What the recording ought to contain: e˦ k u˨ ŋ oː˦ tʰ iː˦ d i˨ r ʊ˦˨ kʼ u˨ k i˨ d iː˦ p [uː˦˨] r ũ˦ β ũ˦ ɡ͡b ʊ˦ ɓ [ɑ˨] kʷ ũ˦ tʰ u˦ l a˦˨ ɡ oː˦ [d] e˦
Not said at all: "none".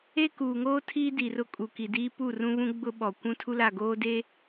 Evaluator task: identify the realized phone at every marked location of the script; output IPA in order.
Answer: u˦˨, ɔ˨, d

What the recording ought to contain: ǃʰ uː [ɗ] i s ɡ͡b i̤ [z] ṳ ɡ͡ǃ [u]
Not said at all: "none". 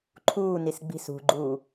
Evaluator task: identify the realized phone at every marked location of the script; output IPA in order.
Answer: n, s, uː

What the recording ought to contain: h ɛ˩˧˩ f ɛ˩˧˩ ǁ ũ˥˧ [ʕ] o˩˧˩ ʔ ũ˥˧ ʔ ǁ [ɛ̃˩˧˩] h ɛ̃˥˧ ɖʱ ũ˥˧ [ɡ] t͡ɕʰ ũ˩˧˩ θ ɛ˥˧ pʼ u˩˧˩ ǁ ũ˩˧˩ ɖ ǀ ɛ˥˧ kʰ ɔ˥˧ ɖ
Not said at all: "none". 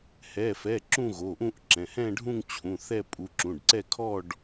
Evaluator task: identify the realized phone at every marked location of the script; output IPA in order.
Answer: ɣ, ɛ̃˩˧˩, ŋ

